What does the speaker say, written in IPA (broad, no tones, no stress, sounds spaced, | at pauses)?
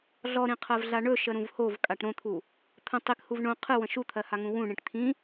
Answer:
ɮ ɔ ɾ ĩ qʰ ɜ v ɮ a ɳ ɵ ʃ ə ɾ ũ v h o v kʼ a ʈ ɾ õ t̪ʰ u | t̪ʰ ə̃ tˤ i k h u v ɳ õ qʰ ɨ w ə̃ ʃ u t̪ʰ ɜ h a ŋ ũ w ũ ɳ ĩ ʈ t̪ʰ ĩ